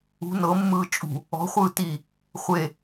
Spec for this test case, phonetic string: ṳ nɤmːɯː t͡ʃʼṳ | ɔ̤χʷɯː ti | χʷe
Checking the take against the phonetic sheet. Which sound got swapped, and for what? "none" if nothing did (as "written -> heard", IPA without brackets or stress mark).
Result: none